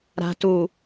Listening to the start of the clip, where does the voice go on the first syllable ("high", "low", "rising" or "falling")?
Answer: low